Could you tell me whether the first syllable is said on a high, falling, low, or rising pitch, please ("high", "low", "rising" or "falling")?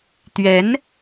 rising